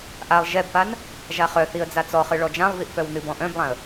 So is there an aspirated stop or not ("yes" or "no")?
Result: no